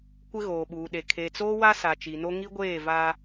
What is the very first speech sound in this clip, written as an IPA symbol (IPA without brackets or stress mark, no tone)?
kʷ